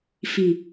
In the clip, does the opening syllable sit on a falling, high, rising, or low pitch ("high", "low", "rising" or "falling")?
low